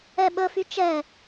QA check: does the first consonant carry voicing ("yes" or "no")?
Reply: yes